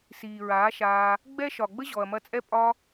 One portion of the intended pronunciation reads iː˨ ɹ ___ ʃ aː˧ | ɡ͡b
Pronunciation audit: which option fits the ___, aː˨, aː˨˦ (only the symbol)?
aː˨˦